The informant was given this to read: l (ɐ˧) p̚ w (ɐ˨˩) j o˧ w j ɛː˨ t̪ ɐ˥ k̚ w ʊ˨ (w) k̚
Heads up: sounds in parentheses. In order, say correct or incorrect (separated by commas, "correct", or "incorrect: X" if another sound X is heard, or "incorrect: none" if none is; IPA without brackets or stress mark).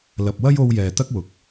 incorrect: ɐ˨, incorrect: ɐ˥, incorrect: none